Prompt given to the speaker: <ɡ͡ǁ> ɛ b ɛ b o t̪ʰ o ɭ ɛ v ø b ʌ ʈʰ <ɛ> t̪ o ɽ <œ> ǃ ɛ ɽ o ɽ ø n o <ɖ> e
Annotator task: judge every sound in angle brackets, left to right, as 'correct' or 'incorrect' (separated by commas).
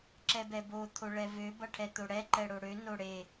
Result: incorrect, correct, incorrect, incorrect